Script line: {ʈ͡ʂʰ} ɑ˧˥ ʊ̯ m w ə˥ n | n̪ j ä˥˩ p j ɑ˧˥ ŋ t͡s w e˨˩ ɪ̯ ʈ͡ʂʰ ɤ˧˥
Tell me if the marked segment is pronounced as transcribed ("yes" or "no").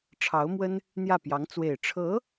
yes